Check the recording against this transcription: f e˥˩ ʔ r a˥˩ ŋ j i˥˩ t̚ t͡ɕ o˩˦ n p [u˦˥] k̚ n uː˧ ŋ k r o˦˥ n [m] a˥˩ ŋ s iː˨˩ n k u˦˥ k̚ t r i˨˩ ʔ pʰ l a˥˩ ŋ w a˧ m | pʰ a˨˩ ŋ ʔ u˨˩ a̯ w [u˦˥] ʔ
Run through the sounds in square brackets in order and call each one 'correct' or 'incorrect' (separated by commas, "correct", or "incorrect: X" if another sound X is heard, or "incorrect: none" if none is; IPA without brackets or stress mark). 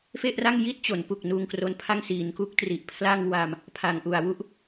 incorrect: u˨˩, incorrect: pʰ, incorrect: u˥˩